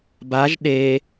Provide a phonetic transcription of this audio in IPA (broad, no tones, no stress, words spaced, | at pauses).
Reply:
baʒ ɗe